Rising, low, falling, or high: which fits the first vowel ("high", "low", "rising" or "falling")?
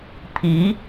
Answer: rising